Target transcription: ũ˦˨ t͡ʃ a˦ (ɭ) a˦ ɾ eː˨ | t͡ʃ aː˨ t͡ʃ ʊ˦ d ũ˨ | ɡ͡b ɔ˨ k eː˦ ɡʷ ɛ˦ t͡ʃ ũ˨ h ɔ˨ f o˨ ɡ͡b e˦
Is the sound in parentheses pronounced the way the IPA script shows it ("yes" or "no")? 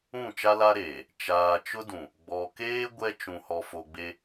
no